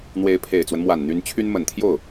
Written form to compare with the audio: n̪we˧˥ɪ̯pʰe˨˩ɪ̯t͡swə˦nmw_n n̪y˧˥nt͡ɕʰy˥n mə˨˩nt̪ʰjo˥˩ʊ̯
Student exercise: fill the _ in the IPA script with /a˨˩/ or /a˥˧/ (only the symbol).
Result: a˨˩